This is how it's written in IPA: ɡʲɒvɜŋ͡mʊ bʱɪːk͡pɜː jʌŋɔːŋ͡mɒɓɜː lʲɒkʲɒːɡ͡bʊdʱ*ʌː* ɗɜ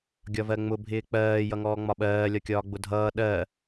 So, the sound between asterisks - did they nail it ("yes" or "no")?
yes